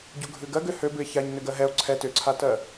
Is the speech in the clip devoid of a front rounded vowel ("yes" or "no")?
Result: no